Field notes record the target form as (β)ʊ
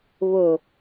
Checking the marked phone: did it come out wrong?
no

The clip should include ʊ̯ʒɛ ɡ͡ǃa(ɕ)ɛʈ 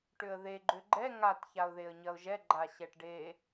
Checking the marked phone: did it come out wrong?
no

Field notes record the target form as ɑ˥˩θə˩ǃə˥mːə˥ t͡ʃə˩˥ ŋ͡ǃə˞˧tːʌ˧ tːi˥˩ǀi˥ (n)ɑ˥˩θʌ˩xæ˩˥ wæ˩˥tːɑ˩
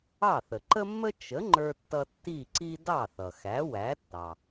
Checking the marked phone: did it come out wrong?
yes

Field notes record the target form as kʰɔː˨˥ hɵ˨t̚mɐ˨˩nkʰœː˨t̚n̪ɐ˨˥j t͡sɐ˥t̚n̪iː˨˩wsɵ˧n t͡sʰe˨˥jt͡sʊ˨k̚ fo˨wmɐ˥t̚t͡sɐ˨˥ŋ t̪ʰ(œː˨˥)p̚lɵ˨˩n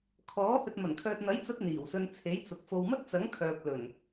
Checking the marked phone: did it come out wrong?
yes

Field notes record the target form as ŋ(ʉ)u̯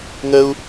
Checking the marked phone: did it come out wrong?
yes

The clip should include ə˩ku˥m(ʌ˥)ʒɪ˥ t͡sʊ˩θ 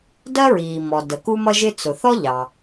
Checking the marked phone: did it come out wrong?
no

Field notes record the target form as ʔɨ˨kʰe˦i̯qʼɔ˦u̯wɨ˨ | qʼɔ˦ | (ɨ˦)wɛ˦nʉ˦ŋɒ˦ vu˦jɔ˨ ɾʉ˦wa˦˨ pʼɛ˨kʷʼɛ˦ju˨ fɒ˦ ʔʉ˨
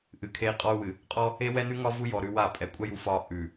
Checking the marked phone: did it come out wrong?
yes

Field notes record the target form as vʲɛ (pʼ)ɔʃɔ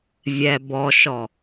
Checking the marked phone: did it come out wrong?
yes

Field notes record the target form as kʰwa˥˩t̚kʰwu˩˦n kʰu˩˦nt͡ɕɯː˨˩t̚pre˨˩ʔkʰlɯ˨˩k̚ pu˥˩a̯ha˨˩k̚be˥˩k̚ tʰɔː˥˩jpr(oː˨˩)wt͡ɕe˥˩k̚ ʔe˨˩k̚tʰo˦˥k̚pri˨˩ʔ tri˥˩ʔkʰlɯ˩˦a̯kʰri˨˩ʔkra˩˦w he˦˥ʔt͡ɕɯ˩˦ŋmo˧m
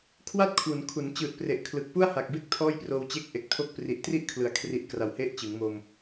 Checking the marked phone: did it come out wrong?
yes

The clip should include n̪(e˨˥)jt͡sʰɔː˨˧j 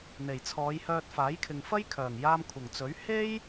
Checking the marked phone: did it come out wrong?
yes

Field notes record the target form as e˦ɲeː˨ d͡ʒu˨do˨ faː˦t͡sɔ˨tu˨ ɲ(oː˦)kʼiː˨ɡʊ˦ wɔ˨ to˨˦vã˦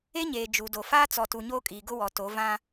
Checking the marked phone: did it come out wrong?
no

